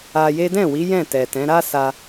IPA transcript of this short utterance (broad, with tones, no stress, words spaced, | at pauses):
a˧je˦ dɛ̃˦˨wi˨˦ jɛ̃˦˨tɛ˨tɛ̃˨˦ ɾa˦sa˧